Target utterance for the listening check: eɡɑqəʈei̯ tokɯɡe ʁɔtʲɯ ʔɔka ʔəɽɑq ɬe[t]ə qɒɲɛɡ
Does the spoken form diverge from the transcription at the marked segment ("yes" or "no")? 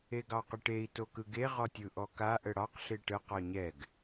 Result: yes